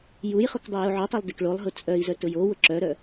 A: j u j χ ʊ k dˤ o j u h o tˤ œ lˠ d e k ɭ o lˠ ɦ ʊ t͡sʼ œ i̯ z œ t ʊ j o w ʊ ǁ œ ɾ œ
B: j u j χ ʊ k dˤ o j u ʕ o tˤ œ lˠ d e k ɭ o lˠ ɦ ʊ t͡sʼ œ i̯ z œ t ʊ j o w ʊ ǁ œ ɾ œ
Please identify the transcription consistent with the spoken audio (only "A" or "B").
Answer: B